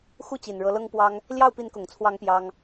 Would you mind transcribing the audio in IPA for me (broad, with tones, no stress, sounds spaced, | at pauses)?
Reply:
x u˥˩ t͡ɕ i˨˩ n ɻ ɤ˧˥ l ɤ˥ ŋ p w ɑ˥ ŋ | l j ɑ˥˩ ʊ̯ p i˧˥ n k ʊ˨˩ ŋ t͡sʰ w ɑ˧˥ ŋ p j ɑ˥ ŋ